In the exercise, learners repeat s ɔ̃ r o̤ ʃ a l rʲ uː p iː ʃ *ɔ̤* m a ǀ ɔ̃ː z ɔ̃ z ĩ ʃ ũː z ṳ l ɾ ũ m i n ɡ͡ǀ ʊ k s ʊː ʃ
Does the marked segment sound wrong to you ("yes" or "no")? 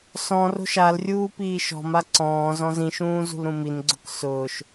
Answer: no